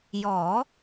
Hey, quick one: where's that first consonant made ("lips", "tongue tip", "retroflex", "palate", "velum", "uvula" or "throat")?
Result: palate